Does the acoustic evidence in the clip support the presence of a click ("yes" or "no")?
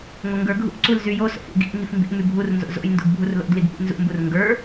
yes